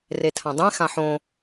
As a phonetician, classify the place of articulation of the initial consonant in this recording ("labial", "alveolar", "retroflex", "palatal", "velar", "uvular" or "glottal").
alveolar